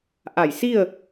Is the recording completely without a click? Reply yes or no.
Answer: yes